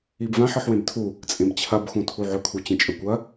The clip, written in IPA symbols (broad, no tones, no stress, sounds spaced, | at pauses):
i b v ã ħ ɨ ħ w ẽ b tʰ u | t͡sʼ ẽ b t͡ɕʰ ɐ b x ũ tʰ u ʕ ɵ kʰ u t͡ɕ ẽ t͡ʃʼ ɵ kʷ ɐ